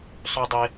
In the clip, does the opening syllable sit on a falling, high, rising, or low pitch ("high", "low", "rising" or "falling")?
high